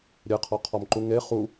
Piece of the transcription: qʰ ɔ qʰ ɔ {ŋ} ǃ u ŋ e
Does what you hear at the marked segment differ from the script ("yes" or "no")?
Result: yes